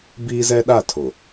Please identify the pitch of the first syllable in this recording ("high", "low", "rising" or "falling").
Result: high